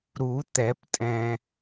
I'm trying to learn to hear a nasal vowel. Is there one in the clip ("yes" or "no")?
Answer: yes